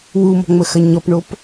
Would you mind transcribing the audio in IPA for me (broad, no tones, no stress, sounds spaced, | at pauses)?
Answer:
w u m ɔ̤ ŋ͡m ə x ɐ ɲ ɔ p ɳ o p